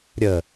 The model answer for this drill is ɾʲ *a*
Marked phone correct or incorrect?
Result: incorrect: ə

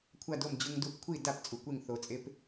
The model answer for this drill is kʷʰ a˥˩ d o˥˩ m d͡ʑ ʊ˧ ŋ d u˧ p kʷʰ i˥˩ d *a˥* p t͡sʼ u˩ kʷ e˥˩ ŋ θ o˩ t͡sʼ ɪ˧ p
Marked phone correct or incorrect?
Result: incorrect: a˥˩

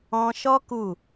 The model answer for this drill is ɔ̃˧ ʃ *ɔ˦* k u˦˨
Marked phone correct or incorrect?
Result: correct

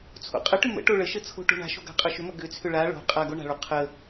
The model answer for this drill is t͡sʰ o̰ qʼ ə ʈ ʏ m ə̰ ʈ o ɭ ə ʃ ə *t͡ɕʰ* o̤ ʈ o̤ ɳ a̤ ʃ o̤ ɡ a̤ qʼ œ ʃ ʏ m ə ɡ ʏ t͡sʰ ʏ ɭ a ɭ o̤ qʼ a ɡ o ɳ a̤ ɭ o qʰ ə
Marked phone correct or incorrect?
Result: incorrect: t͡sʰ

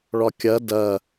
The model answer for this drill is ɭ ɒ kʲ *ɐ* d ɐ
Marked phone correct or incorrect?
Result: correct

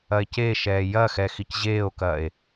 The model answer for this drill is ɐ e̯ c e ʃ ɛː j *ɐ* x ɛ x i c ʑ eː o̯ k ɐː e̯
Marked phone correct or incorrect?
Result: correct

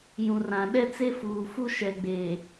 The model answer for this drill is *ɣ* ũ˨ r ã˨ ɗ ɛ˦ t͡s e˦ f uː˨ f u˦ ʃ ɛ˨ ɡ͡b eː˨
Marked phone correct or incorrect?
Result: incorrect: j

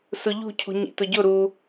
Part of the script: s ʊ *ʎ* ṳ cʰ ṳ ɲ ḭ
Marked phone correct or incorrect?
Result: correct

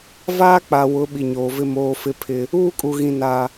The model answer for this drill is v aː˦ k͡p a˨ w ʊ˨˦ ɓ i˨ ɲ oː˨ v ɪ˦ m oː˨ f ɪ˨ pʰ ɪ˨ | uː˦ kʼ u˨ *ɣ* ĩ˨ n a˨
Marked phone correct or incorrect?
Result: correct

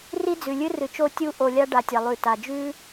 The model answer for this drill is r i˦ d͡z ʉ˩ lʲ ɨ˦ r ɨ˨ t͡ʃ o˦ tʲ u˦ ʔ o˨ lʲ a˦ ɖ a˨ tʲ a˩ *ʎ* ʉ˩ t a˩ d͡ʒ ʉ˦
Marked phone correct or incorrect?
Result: incorrect: lˠ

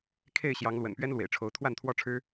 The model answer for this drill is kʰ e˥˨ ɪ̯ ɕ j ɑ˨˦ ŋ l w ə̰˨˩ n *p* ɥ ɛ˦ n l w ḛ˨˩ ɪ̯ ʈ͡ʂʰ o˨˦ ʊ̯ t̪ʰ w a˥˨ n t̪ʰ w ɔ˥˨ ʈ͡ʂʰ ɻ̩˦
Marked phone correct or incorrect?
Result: correct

